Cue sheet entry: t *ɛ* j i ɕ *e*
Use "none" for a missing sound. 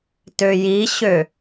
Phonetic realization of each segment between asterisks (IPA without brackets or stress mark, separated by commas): ø, ø